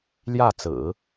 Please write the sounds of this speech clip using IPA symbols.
ljä˥˩t͡sɹ̩˨˩˦

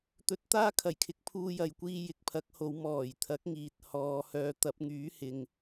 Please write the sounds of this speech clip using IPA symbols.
t̪ɵ˨˥t̚t̪aː˥kʰɐ˨˩j kʰɪ˨˥k̚pʰuː˧jɐ˨˧jkʷiː˧ jɪ˨k̚pʰɐ˨˥k̚ho˨˧w mɔː˨˩jt̪ʰɐ˨˥k̚ŋiː˨t̚ hɔː˨˧ hœː˨t̪ɐ˨˥p̚ŋyː˨˥ hɪ˨ŋ

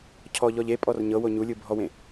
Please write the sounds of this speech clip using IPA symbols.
cʰɔ ʎɔʎepʼɔr ɲɤwo ɲulʲɯbʱɔwẽ

